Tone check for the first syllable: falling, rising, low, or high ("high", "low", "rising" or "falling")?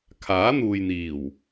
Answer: rising